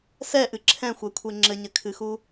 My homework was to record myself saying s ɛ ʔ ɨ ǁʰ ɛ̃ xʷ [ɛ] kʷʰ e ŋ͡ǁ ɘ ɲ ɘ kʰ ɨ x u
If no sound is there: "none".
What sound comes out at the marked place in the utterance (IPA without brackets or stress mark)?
ɛ